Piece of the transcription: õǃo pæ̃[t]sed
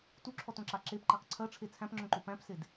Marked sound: incorrect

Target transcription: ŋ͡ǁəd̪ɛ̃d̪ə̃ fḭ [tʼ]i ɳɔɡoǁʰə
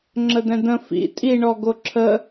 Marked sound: correct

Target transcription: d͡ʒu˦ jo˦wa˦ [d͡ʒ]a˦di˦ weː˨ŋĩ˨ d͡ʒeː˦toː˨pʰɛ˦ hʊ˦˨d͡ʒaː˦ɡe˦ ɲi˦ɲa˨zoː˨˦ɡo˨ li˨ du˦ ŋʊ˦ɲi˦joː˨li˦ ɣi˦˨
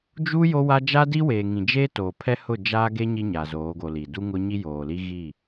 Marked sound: correct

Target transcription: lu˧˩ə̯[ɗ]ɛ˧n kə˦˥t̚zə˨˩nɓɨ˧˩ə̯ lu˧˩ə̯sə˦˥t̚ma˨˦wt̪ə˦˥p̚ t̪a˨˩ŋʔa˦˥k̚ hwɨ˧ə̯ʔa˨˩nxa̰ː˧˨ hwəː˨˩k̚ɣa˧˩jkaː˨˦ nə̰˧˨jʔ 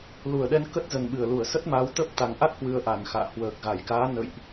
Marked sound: correct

